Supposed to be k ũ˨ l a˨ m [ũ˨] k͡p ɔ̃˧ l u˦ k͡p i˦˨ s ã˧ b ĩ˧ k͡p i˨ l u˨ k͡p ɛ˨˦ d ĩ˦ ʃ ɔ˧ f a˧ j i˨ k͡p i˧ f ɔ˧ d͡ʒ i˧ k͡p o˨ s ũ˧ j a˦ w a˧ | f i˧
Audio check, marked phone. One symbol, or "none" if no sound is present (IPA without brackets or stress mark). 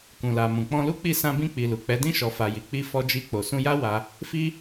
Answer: ũ˨